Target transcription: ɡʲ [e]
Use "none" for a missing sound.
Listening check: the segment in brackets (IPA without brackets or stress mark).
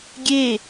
e